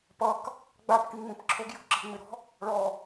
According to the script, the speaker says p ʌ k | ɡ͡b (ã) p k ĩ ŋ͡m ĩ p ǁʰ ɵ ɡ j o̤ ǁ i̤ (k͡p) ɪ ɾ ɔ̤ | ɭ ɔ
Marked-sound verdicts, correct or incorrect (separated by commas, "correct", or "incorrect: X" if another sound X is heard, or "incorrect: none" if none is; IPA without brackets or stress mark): incorrect: a, incorrect: ŋ͡m